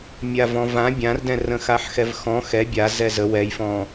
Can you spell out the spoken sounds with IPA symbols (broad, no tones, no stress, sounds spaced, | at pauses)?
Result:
mʲ a v ɔ̃ v ã bʲ ã r d ɛ̃ r ə̃ x a ħ x ɛ v x ɔ̃ x ɛ bʲ a z ɛ z ə w ɛ j f ɔ̃